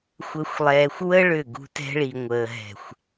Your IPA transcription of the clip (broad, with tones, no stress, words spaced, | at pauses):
xʷəː˨xʷlˠɛː˨xʷwə˦ ɭʏ˦˨ɡṳ˦ tɛ̤˦ɭi˨ŋʷəː˨ ɦɛ̤˨xʷ